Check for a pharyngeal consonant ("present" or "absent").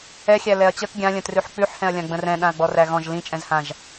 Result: present